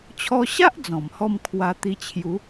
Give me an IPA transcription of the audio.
t͡ɕʰ ɔ˧ ɕ a˦ ʔ d͡z ɔ̃˨˩ m h ɔ˥˧ m kʰ w a˧ t̪ i˧ t͡ɕʰ j u˨˦

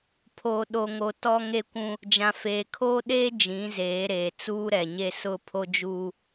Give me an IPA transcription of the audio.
pʰ o˨ ɗ o˨ ŋ o˨ t ɔ˦ ŋ e˦ kʷ ũ˦ | d͡ʒ ã˨ f eː˨ kʰ oː˦ ɗ eː˦ d͡ʒ ĩ˨˦ z eː˨˦ ɾ eː˨ t͡s uː˦ ɾ ɛ˨ ɲ e˦ s ʊ˦ pʰ o˦ d͡ʒ uː˦

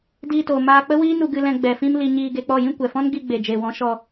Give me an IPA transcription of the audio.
d iː˧ t oː˨ m aː˧ k͡p ə˦ w iː˦ n u˧ ɡ ɨ˧ l ɛ̃˧ ɡ͡b ɛ˨ f ĩ˧ m l i˧ ɲ iː˧ ɡ e˧ k͡p ɔ˦˨ j ĩ˦ kʷ ɛ˨ f ɔ̃˦ n ɡ i˧ ɡ͡b e˨ d͡ʒ e˨ w ɔ̃˨˦ ʃ ɔ˧

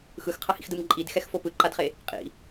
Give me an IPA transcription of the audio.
x ɯ x qʰ ʌ h ḭ x d ɯ m ǃʼ i d x ɛ x f o p ɯ ǃ a d χ e | qʼ ḭ

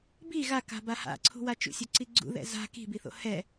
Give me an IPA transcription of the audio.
b i ɣ a k a̤ b a h a̰ ǀʰ ṳ w a t͡ʃ ṵ sʲ o ǀ i ɡ͡ǀ ṵ ð ɛ̰ z a̤ k i̤ b i θ o̰ h ɛ

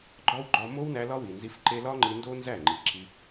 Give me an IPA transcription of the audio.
ɡ͡ǃ ɒ˦ w ɡ͡ǃ ɒ˧ m o˦ w n æ˧ l ɒ˦ w i˨ n z i˧ f ǃ e˧ l ɒ˦ ŋ͡ǃ i˧ n d o˦ n z æ˦˨ ŋ͡ǃ i˨ ǁ i˧

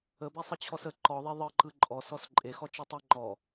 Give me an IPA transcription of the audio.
ə b ɛ sˤ ə t͡ɕʰ ɔ s ə ǃ ɔ ðˤ e ðˤ ɯ ǃ ɯ ǃʼ ɔ s ɔ s ǃʼ e x ɔ t͡ʃ e tˤ e ŋ͡ǃ ɔ

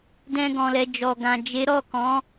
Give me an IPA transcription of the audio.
d ɛ̃˧ ɡ ɔ̃˨ l ɛ˨ d͡ʒ ɔ˨ ɡ ã˨ d͡ʒ e˨˦ ɾ ɔ˦˨ k ɔ̃˨˦

